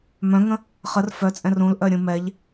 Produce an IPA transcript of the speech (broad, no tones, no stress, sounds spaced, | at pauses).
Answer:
m œ̃ ŋ ə̃ | χ ə r f œ t͡sʼ ɛ̃ r ũ l ʔ œ ɾʲ ũ m ɛ ʎ